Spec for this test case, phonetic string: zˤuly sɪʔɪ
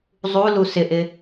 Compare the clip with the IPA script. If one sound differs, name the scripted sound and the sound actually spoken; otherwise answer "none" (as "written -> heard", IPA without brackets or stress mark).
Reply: y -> u